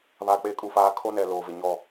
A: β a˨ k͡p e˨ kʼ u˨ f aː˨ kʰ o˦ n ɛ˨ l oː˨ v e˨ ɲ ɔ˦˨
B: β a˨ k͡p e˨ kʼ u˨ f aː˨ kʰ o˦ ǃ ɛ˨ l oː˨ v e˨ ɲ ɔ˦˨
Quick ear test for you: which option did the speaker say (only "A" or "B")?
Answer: A